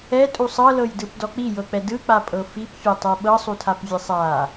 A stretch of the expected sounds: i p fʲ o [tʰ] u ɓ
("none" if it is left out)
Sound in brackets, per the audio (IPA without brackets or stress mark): tˤ